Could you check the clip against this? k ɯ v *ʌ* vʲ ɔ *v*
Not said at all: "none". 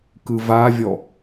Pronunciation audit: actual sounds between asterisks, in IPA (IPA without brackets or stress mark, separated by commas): a, none